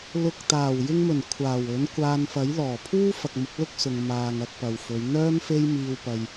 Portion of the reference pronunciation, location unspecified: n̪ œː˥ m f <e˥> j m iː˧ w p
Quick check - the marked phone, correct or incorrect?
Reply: correct